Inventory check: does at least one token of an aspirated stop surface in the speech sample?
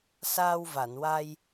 no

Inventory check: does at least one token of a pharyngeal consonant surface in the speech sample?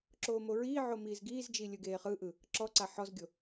yes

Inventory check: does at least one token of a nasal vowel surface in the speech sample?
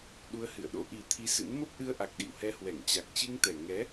no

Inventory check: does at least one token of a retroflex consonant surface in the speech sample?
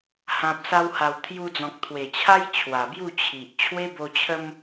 no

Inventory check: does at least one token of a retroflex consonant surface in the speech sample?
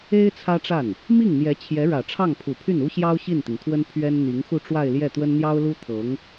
yes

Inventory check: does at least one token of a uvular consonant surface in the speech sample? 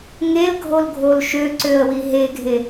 no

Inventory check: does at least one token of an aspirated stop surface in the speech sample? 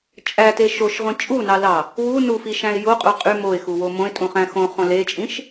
no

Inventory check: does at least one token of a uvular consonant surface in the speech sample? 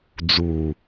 no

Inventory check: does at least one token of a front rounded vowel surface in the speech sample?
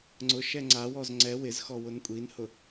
no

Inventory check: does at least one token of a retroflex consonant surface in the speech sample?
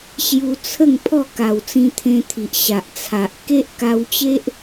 no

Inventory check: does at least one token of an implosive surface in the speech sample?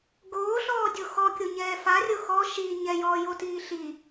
no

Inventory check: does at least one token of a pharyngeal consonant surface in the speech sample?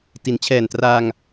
no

